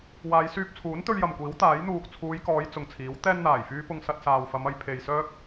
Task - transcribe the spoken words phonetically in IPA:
w aː˨˧ j s yː˧ p̚ t͡sʰ uː˨˥ n t̪ ɵ˧ ɥ j ɐ˨ m kʷ iː˨˥ w t̪ aː˨˥ j n̪ uː˨ k̚ t͡sʰ uː˨˧ j k ɔː˨˧ j t͡s ʊ˨ ŋ t͡sʰ iː˨˥ w t̪ ɛː˥ n n̪ aː˨˩ j f yː˥ p ʊ˧ ŋ s ɐ˧ t̚ s aː˨ w f ɐ˨˧ m ɐ˧ j pʰ e˨ j s œː˥ k̚

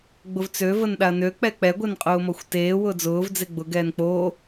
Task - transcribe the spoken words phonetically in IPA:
ɡ͡b ʊ v t͡s ø v ə n ɗ a ɐ̯ n ø k͡p ɛ k͡p ɛ ɡʷ e n qʼ ʊː m ɔ xʷ t eː w ʊː d͡z ʊː v d͡z e ɡ͡b ʊ ɡ ɛː n k͡p oː

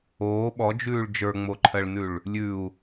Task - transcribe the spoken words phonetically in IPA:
oː ɓ ɔ d͡ʒ ʉː ɭ d͡ʒ ə˞ ŋ͡m o ǃʰ ɜ ɭ n ʉ ɭ | lʲ ʉ u̯

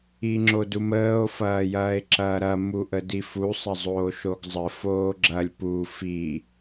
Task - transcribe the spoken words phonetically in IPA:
i ŋ͡ǁ o d u m əː o̯ f ɐː j ɐː e̯ ǁ ɐː ɾ ɐ m u ʔ ə d i f u sˤ ɐ zˤ oː ʃ o ɡ zˤ ə f oː ɡ͡ǁ ɐ lʲ p u f i

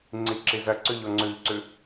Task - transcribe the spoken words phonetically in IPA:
ŋ͡ǀ i ǁ i z ɐ ǀ ʉ ʎ o ŋ͡ǀ ʉ ʎ ǀ ʉ

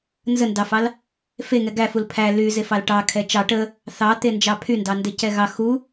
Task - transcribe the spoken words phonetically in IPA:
n z ə n d ɑ f ɑ l | f e ŋ ɛ ɡ æ f u l pʰ æ l y z e f ɑ l ʈ ɑ kʰ ɛ t͡ʃ ɑ ʈ ə | θ ɑ t̪ e n d͡ʒ ɑ pʰ y n d ɑ n d e c ɛ ɣ ɑ x u

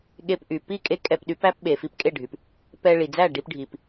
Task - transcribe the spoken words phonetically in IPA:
ɠ e˧ p ʔ y˩ p i˥˩ kʼ e˥ kʼ ɛ˧ p ɗ y˩˥ p æ˥ p ɓ e˩ f i˧ p kʼ e˥˩ ɖʱ y˩ p | p ɛ˧ ɭ i˩ d͡z æ˥˩ ɖ i˧ p ɖʱ i˩ p

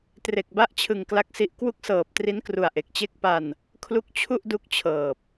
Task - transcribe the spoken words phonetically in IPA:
t r e˨˩ k̚ b a˦˥ ʔ t͡ɕʰ ɯ˨˩ ŋ k l a˦˥ k̚ s i˦˥ ʔ k w u˦˥ k̚ s ɤː˨˩ p̚ t r i˦˥ n k r u˨˩ a̯ ʔ e˨˩ k̚ t͡ɕ e˥˩ k̚ p a˧ n | kʰ l u˦˥ k̚ t͡ɕʰ u˥˩ ʔ d u˦˥ k̚ t͡ɕʰ ɤː˨˩ p̚

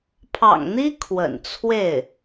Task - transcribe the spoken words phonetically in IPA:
pʰ ɑ̰˨˩ ŋ n̪ i˥ kʰ w ə̰˨˩ n t͡sʰ w e˥˩ ɪ̯

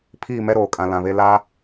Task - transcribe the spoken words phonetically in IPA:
pʰ iː˦˨ m ɛ˦ ɾ oː˨ kʼ ã˨ l ã˨ β e˦ l a˦

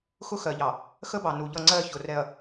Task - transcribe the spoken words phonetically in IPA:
x ʊ˦ x ɜ˨ ʎ ɑ˨ | x ə˦ b ɑ˨ n u˨ ʎ ʌ˦˨ ŋ͡ǀ ɜ˦˨ ç ʊ˨ r ɛ˨ ɐ̯

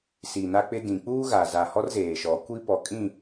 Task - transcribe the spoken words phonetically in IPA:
s i˨ n a˦ k͡p ɪ˦ d ĩ˨ k͡p uː˦ ɣ a˨ z a˨ h ɔ˦ r z eː˨ ʃ ɔ˨˦ kʷ i˦ p ɔ˨ kʼ ĩ˦˨

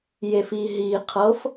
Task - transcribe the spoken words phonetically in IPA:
j e f i ɦ i qʰ ɤ f

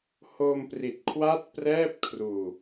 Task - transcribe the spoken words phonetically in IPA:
h o˧ m p r i˨˩ t̚ kʰ w a˦˥ t̚ p r ɛː˥˩ p̚ kʰ r uː˧

